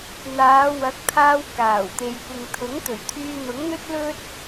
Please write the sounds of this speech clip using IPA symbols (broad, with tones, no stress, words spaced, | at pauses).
n̪aː˨˧wɐ˨˥k̚t̪ʰaː˧w kaː˨˩wt̪e˨j kʷɪ˨ŋt̪ʰʊ˨˥ŋt̪ɵ˨˩ɥt̪ʰyː˧ n̪ʊ˨˥ŋn̪ɵ˥t̚lɵ˥t̚